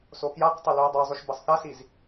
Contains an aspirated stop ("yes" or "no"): no